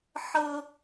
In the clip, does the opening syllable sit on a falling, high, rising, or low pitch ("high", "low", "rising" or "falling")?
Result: high